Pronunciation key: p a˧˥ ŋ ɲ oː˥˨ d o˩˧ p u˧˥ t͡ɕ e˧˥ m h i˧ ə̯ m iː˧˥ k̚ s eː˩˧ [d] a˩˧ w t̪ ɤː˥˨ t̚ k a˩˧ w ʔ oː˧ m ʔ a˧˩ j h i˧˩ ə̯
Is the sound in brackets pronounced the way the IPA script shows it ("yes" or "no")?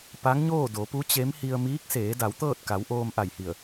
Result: yes